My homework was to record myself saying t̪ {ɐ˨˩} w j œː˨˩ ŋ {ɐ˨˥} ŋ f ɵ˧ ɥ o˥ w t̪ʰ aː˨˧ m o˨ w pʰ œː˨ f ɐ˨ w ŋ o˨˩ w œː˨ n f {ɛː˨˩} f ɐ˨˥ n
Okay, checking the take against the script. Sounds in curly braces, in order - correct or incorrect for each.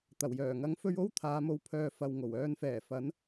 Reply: correct, correct, correct

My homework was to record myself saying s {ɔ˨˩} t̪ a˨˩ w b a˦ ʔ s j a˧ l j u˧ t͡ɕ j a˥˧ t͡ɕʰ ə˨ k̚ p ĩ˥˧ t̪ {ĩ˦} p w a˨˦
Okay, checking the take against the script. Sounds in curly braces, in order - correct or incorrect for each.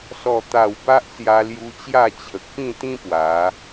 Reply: correct, correct

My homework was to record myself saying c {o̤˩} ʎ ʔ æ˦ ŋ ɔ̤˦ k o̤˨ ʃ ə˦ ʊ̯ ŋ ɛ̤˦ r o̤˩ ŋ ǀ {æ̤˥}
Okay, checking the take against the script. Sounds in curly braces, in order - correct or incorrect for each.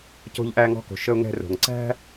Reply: incorrect: o̤˦, correct

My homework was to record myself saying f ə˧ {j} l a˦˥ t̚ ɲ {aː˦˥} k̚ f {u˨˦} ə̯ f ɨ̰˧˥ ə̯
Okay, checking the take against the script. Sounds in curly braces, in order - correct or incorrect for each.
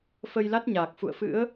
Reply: correct, incorrect: aː˨˩, incorrect: ṵ˧˨

